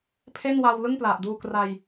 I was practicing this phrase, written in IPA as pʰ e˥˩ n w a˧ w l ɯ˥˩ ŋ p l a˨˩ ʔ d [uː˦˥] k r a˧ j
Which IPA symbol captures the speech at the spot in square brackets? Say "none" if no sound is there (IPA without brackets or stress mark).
uː˧